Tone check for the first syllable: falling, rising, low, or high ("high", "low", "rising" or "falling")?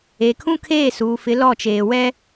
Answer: low